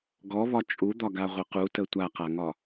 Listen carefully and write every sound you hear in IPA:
ɡɔβɒ t͡ʃʼud̪ɒɡaʁʷə qutə tʷaqaŋɒ

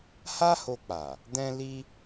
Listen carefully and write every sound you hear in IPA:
ha˦ho˧k͡pa˨ | dɛ̃˦li˦

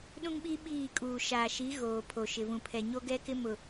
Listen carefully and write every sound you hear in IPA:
ɗũ˦ŋɓi˦ ɓiː˦˨kʼuː˨ ʃaː˨ʃi˨˦ ɣoː˨pʰo˨ʃɪ˨vũ˨ pʰɛ˨ ɲo˦ɡɛ˦kɪ˦ mʊ˨

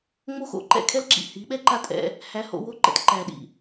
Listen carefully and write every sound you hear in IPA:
ŋ͡mo˦xo̰˨ǃɛ̰˦˨ kʰɛ˦lǁḭ˨ hi˨˦ɓɛ˦ǃa˦tʼɛ̰˧ | hæ˧ho̰˧ wo˧ǃɛ̰˨t ǃæ˨ɗḭ˨

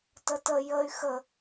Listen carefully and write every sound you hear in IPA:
tətə jəy̯ xə

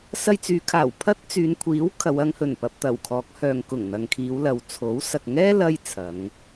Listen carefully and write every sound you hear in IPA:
sɐ˧jt͡syː˨˧kʰaː˨˩w pʰɐ˥t̚ t͡syː˨˧nkʷʰiː˨˥w kʰɐ˨˧wɐ˨˧ŋhɵ˨˩n pɐ˨p̚t̪ɐ˨˩w kʰɔː˨˥k̚hœː˨ŋ kʊ˨˩ŋ n̪ɐ˨ŋkʰiː˨˧wlɐ˨wt͡sʰo˨˥w sɐ˨k̚ŋɛː˥ lɐ˥jt͡sʰɐ˨˧ŋ

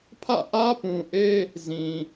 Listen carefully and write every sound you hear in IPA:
pʰä̰˦˨ʔä˦pũ˨ʔe˦ | zĩ˨

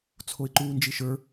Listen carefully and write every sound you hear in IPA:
t͡sʰoɪ̯ǃuːnd͡ʒiʃə˞

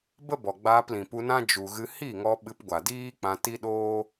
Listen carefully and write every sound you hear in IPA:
bə˦bɔ˨ ɡ͡baː˧plĩ˨pu˧nã˦ d͡ʒu˨ɣɨ˧ hi˦˨ŋɔ˧ ɓɨ˧pɡʷa˨diː˦k͡pã˧ ti˦ɗoː˦

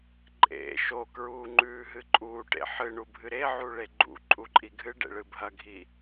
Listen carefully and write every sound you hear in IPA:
ǃʼḛ ʃokɹuːŋ͡ǃʉːɦɨ ǃʼuːʈḛ ħɨɳubʱɨ ɾeʕuɭe ɡ͡ǃṵǃʼuǃʼi ɡʱɨɖḛɭɨ bʱɐɡʱi

